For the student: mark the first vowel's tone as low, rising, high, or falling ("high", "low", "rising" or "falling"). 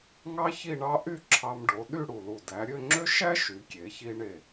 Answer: high